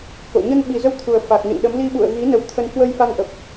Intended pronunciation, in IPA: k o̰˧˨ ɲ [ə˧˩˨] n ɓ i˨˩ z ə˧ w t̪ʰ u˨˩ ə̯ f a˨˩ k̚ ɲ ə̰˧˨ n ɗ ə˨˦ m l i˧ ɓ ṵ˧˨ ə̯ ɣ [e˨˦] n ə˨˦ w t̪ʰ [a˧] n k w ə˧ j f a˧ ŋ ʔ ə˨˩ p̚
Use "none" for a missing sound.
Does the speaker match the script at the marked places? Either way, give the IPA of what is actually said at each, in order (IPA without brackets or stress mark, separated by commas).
ə˧, i˨˦, ə˧